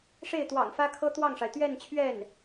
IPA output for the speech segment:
ʂ e˥˩ ɪ̯ t̪ w ɑ̰˨˩ ŋ f ä˥ kʰ ɤ˥ t̪ w ɑ˥˩ ŋ ʂ a˩ ɪ̯ t̪ ɥ ɛ˥˧ n t͡ɕʰ ɥ ɛ˥˩ n

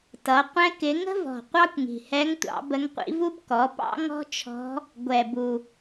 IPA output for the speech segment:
t ʌ˩˥ qʷ ɛ̃˥ k ɪ˧˥ ŋ ə̤˥ v ɔ̤˨˩ qʷ ɑ˥ kʷ ŋ i̤˨˩ h ɛ˧˥ ŋ tʷ ɑ̰˩˥ b ə˧˥ ŋ qʷ ḭ˧˥ v u˥ b k ɔ˩˥ p ɑ̰˥ ŋ ɔ̤˥ t͡ʃʰ ɔ̤˧˥ | ɡʷ ɛ˨˩ b u˨˩

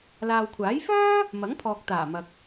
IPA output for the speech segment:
l aː˨ w kʷʰ aː˨˥ j f œː˥ | m ɐ˨˥ ŋ pʰ ɔː˨ k̚ t̪ aː˨˩ m ɐ˨ k̚

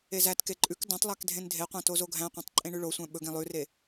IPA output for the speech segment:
e z æ t k e ǃʼ ʉ k d ɑ̃ tˤ lˠ æ k dʱ ẽ n dʱ e qʷ ɑ̃ t o z o ɡʱ æ̃ qʷ ɑ̃ tˤ ǃʼ ẽ ɳ ʉ ɭ o sʷ æ̃ ɓ ɵ ɡ ẽ lˠ ʉ r e

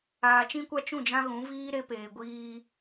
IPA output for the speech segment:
aː˨ t͡ʃ ĩ˦ kʷ a˦ t͡ʃ ũ˦˨ d͡ʒ ã˦ ɣ ũ˨˦ v iː˦ ɾ e˦ p eː˨ ɡʷ iː˦

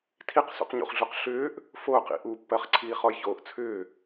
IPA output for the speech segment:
tʰ i q s ṵ q ɲ ṵ χ ɮ u q ɬ ʏː ʔ | f oː q ḭ ʔ u pː ɜ χ ǀʰ iː χ ɔ j ç oː ʔ t͡sʰ ʏː

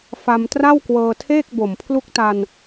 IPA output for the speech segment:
f a˧ m t r a˥˩ w k w ɤː˧ tʰ eː˥˩ k̚ b o˨˩ m pʰ l u˦˥ k̚ t a˧ n

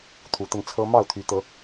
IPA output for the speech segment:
t̪ʰ u˨˦ t̪ ə˧ n t͡sʰ ɤ˦ m ɑ˥˨ ʊ̯ t̪ʰ y˨˦ t̪ ɤ˨˦

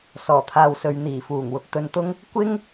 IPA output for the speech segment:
s ɔː˨˩ t̪ʰ aː˨ w s ɵ˨ ɥ n̪ iː˨˩ f uː˨˩ ŋ w ʊ˧ k̚ t̪ ɵ˧ n t̪ ʊ˥ ŋ | kʷ ɪ˥ ŋ

